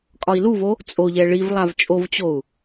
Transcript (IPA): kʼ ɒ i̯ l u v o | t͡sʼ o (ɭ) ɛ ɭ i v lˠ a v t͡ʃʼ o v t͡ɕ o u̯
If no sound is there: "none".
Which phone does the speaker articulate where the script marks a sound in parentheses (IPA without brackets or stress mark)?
ʎ